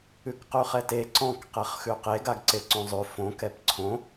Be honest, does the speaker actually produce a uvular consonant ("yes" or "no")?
yes